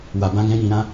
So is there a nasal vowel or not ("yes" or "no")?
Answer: yes